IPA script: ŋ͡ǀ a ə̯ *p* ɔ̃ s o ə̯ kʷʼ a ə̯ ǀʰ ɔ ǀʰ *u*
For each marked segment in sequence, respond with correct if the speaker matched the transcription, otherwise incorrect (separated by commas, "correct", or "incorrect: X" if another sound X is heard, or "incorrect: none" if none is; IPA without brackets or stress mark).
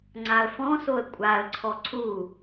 incorrect: f, correct